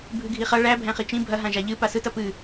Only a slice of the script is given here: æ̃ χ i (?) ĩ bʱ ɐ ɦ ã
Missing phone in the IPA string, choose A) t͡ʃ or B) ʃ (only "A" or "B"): A